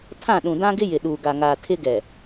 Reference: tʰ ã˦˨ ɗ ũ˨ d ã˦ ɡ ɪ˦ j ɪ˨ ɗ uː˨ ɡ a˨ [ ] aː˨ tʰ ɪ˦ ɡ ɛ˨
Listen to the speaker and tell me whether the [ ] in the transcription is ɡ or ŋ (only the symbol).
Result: ŋ